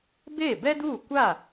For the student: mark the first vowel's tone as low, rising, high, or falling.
falling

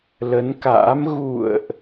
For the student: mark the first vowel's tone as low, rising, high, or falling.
rising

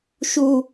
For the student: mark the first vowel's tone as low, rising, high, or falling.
high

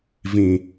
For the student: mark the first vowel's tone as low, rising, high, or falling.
low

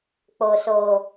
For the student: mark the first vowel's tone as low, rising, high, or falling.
low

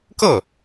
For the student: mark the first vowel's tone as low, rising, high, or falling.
falling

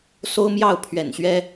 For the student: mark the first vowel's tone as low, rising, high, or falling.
high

